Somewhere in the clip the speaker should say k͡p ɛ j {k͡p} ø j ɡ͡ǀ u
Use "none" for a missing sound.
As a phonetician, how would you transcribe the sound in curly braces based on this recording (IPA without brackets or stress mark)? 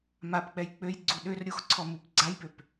k͡p